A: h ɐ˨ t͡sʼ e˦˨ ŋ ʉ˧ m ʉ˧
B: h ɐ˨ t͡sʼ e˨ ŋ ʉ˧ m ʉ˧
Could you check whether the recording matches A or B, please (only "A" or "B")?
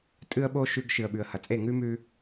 A